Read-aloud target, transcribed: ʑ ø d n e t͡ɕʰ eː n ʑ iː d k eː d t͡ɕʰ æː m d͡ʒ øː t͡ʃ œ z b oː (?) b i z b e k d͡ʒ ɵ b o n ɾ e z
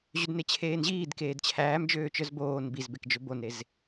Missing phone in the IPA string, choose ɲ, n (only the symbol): n